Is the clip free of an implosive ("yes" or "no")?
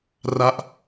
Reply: yes